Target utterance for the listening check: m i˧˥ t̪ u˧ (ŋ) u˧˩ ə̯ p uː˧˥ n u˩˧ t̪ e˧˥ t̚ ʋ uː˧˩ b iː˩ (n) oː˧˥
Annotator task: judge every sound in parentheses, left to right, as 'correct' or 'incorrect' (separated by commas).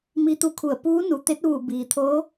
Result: incorrect, incorrect